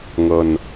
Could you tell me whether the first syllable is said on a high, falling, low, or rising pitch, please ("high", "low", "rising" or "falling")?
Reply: low